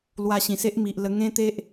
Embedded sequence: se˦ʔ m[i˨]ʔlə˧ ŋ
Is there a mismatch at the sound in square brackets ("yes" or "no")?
no